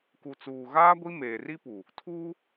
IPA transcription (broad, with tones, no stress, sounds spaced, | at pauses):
k u˨ t͡s uː˨ ɣ aː˦ ɡʷ i˦ m eː˨ r i˦ p u˨ | tʰ uː˦